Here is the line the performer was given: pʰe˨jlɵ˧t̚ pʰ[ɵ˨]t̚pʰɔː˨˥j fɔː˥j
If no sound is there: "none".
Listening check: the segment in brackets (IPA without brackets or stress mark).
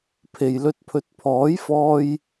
ɵ˨